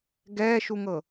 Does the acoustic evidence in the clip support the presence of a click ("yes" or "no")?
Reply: no